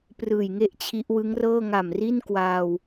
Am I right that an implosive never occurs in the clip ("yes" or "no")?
yes